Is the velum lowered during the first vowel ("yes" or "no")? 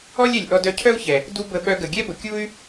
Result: no